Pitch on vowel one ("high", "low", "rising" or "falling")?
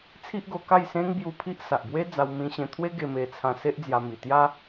high